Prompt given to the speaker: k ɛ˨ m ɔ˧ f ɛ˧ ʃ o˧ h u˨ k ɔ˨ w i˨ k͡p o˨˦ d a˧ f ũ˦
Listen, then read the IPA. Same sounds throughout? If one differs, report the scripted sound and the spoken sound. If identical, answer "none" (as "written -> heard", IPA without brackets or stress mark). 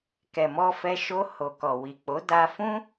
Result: u˨ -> o˨